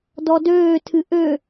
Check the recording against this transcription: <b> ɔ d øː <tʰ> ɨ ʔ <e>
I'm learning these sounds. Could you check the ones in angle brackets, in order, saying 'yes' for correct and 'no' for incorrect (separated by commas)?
no, yes, no